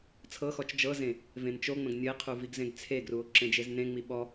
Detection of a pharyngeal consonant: absent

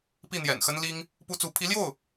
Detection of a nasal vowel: absent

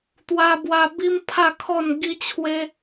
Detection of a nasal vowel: absent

